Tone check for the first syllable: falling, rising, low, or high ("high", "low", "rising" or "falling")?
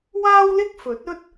high